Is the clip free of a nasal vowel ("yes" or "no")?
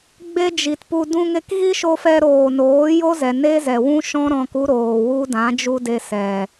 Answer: no